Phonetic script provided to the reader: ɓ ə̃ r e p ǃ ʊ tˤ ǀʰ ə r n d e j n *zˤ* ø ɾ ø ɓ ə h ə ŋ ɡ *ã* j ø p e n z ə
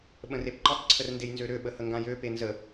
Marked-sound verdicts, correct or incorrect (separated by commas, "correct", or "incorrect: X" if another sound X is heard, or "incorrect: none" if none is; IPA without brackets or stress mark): incorrect: z, correct